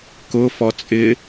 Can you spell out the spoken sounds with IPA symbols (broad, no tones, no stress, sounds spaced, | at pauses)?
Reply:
k ʊ f ɔ t͡sʼ ɪ